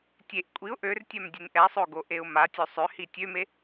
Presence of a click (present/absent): absent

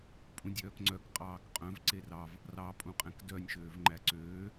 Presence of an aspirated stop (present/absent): absent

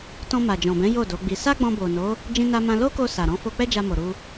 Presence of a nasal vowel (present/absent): present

